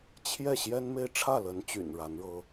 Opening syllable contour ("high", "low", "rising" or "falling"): falling